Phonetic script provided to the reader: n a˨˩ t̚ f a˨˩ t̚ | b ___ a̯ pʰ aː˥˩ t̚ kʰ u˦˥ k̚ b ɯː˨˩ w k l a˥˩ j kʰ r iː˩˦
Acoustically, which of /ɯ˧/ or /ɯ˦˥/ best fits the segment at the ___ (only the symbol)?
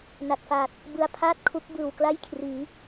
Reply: ɯ˧